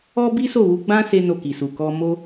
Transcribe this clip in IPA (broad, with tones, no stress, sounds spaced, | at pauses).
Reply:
ɔ˦ b i˦ s o˦˨ w u˧ ɡ͡b ã˦ s e˦ n o˦˨ k i˨ s u˨ k ɔ˧ m o˧